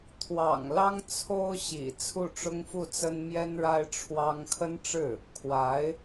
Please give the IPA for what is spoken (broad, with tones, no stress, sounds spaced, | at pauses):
t̪ʰ w ɑ̰˨˩ ŋ l ɑ˥ ŋ t͡sʰ o˥ ʊ̯ ɕ ḭ˨˩ t͡sʰ u˥˩ ʈ͡ʂ ʊ˥ ŋ f u˥˩ t͡s ə˥ n m j ɛ˥ n ɻ a˥ ɪ̯ ʈ͡ʂʰ w ɑ˥ ŋ kʰ ə˥ n ʈ͡ʂ ɻ̩˥˩ | kʰ w a˧˥ ɪ̯